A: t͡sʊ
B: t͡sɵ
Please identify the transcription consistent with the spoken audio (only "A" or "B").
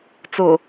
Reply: A